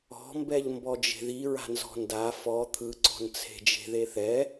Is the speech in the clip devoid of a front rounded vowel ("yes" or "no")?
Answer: yes